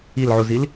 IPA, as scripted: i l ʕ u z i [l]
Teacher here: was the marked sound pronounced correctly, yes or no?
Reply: yes